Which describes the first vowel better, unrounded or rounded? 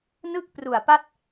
unrounded